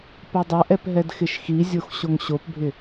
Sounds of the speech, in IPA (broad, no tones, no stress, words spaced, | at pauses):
pɐdˤɐʔɛp ɦɛdxɪʃxizʲox ɕoŋɕopbʱɪ